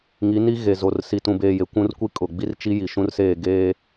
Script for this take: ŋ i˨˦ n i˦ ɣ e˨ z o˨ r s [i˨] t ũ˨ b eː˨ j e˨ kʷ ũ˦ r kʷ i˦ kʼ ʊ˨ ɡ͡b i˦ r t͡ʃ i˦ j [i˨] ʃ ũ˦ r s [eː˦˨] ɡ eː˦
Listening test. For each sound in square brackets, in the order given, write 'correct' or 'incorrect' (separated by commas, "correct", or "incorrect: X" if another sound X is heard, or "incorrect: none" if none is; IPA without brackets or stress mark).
correct, correct, correct